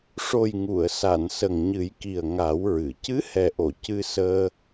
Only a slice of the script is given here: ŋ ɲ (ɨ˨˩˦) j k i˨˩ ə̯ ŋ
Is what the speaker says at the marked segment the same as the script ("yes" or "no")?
yes